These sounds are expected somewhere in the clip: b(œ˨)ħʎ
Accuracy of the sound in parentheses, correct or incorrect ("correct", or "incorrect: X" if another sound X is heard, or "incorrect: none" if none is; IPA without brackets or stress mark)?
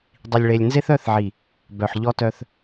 correct